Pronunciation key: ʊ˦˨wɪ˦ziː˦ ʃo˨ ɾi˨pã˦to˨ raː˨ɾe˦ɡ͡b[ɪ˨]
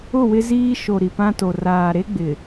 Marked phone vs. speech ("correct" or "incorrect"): correct